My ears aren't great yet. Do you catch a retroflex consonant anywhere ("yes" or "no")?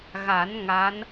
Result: no